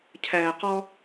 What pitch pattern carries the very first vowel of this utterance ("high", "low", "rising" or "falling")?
low